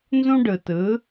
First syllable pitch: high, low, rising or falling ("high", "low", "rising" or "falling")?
high